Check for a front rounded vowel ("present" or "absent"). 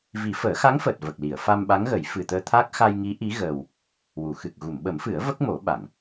absent